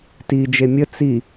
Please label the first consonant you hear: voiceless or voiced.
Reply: voiceless